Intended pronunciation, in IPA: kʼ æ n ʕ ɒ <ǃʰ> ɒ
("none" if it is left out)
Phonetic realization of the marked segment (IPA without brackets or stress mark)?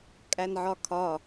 kʰ